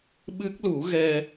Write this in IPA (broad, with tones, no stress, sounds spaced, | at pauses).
ɓ ɨ˦˥ k̚ l u˨˩˦ ɣ ɛ˧